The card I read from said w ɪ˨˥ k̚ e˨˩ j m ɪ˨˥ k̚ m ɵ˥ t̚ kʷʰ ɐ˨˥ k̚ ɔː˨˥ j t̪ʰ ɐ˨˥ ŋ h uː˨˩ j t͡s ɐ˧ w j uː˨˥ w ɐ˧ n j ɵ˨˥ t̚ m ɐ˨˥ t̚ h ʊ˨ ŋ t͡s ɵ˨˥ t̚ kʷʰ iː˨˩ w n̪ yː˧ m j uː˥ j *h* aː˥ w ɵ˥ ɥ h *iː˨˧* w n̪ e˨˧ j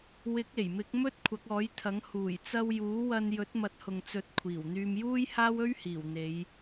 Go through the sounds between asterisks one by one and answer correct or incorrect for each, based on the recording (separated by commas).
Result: correct, incorrect